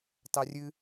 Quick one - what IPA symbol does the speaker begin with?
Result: t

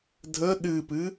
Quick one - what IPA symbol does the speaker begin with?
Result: dʱ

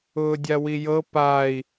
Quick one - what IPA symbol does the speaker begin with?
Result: ʊː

